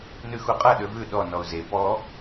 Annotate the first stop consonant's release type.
ejective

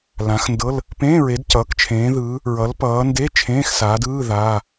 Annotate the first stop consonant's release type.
plain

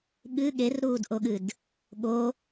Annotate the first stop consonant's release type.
implosive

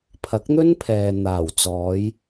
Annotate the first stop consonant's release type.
aspirated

